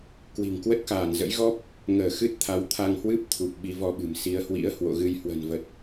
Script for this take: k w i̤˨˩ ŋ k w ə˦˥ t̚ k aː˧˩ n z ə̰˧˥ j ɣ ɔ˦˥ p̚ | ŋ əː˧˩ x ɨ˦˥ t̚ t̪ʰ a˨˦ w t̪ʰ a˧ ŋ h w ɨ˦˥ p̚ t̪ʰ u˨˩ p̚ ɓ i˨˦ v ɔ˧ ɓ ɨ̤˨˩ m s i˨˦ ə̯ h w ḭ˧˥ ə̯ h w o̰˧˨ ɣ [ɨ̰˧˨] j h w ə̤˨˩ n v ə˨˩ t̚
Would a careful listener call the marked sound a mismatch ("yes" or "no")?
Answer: yes